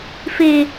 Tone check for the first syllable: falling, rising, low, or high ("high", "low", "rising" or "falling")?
low